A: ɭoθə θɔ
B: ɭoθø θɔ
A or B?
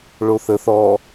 A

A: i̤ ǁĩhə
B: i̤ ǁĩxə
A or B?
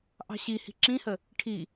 A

